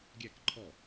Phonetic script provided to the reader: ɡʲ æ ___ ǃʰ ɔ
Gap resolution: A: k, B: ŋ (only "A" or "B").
A